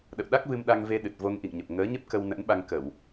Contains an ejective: no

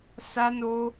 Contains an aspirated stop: no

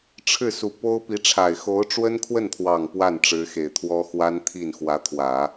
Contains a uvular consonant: no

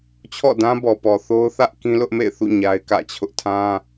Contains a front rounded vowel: no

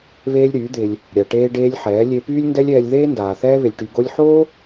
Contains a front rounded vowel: yes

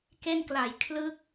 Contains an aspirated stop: yes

